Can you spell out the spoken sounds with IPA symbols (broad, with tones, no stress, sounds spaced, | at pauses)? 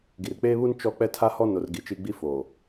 ɡ i˨ r k͡p eː˦ β u˦ n t͡ʃ ɔ˦ k͡p ɛ˦ tʰ a˦ h ɔ˦ n o˨ r ɡ i˨ t͡ʃ i˦ ɡ͡b i˦ f oː˨